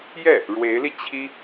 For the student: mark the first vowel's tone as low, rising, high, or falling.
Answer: falling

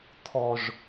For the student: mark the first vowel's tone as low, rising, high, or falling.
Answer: low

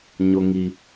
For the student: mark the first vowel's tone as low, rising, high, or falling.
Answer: low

